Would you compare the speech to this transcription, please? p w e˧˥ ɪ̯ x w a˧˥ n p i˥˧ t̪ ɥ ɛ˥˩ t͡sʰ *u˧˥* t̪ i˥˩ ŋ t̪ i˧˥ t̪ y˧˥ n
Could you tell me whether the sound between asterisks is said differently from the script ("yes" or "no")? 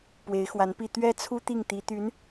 yes